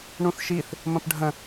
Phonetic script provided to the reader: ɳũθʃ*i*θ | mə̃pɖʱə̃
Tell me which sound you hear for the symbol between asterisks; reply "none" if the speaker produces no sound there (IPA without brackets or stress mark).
i